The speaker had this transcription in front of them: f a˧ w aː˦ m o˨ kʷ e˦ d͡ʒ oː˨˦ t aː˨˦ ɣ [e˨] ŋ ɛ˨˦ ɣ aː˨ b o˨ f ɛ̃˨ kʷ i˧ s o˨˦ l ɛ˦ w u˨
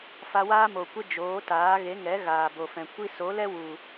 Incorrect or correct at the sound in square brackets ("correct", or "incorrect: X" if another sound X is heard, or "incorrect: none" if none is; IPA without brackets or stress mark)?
incorrect: e˨˦